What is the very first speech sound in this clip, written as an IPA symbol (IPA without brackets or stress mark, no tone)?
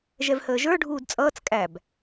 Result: ʒ